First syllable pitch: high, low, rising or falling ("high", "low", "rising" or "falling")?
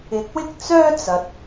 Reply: rising